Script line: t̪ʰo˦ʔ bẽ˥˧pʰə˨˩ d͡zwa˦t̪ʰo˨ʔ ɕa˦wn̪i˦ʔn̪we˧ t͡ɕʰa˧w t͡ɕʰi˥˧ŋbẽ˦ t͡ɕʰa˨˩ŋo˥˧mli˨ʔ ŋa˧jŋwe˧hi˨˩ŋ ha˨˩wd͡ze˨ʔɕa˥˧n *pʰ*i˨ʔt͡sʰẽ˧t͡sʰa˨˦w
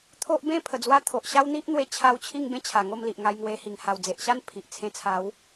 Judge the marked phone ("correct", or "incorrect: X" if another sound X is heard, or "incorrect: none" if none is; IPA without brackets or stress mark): correct